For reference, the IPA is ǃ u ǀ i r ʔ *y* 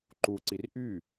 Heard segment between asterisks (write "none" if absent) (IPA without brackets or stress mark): y